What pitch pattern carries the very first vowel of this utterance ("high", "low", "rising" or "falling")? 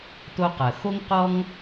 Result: high